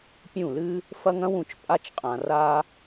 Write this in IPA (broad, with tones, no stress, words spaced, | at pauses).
pʲũ˥˩lɨ˥ | fɐ˥ŋɐ̃˥wũ˧t͡ʃ pʼa˥t͡ʃqʼã˧ra˥